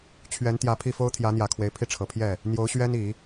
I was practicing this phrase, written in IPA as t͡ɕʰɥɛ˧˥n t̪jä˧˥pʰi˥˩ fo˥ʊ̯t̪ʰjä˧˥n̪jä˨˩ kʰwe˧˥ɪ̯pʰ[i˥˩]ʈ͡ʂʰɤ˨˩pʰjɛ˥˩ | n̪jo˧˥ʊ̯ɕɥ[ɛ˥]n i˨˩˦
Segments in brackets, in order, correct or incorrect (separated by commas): correct, correct